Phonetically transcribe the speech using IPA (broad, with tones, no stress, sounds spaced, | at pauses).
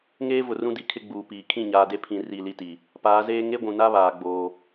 ŋ eː˦ v ʊ˨ r ũ˦ d i˨ kʰ ɪ˦ ɡ͡b uː˨ p iː˨ kʰ ĩ˦˨ ɲ aː˨ d e˦ pʰ ĩ˨ r i˦˨ l i˦ t i˨ | p aː˨˦ z eː˦ ŋ e˦ ɡʷ ũ˨ n a˦ β aː˨ ɡ͡b oː˦